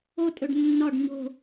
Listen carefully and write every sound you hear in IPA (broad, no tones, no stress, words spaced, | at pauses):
otʼɵɖ nːɒɖ ɲo̤